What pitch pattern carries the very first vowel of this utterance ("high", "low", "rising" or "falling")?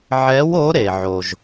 rising